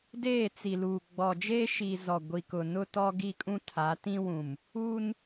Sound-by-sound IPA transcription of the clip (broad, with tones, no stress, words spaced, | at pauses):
deː˦˨t͡si˨luː˨ ɡ͡bɔ˨d͡ʒeː˦ʃiː˨ zɔ˨ ɡʷi˨kʊ˨ nʊ˦tɔ˦ ɡi˦˨kʼũ˦ tʰa˨˦tĩ˦wũ˨m | uː˦n